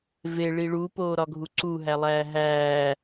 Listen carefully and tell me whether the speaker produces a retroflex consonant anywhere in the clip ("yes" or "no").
yes